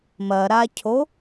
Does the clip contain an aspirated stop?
yes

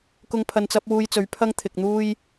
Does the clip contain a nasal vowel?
no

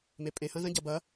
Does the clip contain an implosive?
no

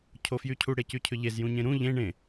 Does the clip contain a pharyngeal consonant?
no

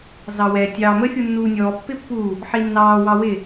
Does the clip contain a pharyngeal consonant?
yes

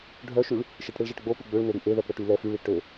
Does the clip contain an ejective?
no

